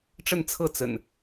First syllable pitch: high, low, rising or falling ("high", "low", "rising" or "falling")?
falling